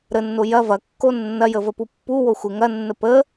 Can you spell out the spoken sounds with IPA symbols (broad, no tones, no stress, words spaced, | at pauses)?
ɾənːo jɐ vɐkːo nːɐjəvəpu pːuwoxʷe ŋɐnːə pə